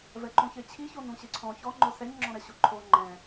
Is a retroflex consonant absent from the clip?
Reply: yes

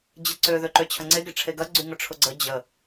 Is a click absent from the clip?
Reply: no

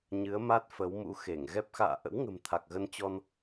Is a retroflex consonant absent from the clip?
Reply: yes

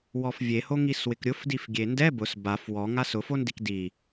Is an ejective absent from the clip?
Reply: yes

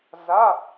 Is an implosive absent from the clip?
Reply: yes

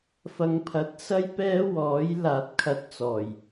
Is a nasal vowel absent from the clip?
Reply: yes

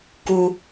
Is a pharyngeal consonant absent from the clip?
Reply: yes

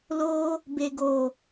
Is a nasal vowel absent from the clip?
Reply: yes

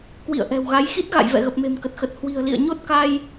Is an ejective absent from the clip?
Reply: yes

